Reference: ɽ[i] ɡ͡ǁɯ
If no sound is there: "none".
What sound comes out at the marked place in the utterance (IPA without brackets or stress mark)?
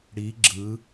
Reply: i